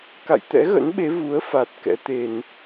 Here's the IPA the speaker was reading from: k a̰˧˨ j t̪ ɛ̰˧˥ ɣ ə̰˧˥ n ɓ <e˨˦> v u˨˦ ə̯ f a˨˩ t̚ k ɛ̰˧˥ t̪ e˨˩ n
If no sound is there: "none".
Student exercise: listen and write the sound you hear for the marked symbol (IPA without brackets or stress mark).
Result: e˨˦